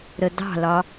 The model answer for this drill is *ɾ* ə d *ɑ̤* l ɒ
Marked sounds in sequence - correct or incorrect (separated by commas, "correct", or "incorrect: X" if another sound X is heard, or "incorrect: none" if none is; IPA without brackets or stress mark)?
correct, correct